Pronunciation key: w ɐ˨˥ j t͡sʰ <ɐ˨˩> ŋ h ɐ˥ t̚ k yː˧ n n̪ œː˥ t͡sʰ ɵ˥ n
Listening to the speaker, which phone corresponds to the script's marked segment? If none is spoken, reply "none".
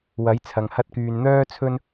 ɐ˨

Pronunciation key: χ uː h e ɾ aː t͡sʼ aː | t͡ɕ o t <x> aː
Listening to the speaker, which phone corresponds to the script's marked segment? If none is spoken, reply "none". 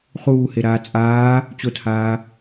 h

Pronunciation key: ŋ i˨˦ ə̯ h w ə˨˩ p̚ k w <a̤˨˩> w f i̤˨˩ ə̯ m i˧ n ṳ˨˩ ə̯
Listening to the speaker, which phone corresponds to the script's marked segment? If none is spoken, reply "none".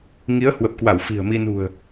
a˧˩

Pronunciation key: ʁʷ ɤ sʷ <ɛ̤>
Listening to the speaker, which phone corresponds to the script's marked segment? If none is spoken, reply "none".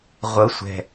ɛ̤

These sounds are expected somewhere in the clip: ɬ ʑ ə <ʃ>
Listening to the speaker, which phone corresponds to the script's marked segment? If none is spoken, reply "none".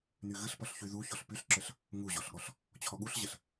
ɬ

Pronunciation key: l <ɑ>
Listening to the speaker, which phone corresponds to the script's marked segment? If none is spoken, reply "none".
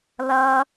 ʌ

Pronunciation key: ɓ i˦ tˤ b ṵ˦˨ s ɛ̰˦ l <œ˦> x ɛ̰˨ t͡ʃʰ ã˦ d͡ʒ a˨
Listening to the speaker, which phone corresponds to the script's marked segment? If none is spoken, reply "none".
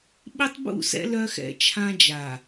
œ˦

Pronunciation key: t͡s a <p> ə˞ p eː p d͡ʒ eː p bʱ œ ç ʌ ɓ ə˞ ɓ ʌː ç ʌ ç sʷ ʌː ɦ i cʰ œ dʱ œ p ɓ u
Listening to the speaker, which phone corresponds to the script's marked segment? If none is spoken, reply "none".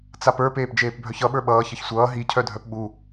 p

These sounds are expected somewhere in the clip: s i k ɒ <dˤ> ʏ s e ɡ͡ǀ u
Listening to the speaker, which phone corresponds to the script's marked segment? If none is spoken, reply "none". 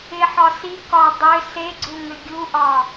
dˤ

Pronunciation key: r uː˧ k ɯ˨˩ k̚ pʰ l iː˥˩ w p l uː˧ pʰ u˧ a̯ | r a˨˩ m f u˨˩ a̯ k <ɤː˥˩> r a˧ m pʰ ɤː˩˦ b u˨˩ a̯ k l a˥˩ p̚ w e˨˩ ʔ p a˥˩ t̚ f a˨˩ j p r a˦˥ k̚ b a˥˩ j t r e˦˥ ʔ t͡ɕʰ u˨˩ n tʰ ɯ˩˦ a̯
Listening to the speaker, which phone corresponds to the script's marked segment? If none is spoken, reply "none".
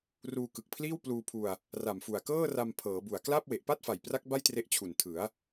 ɤː˥˩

